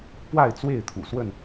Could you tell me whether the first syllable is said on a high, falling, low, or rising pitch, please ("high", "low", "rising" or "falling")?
falling